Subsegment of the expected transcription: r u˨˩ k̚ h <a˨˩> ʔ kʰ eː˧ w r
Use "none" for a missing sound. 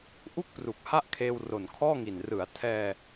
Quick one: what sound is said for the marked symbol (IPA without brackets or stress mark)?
a˥˩